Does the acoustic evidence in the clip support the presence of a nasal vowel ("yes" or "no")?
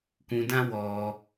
yes